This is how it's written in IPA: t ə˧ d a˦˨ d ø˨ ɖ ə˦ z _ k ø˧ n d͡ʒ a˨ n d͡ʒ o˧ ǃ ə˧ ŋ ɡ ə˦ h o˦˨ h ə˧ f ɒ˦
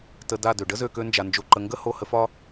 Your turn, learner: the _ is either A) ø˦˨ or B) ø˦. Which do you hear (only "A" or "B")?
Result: A